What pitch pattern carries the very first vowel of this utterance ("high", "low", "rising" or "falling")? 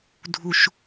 low